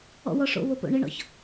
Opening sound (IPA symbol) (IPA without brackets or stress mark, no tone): ɔ̰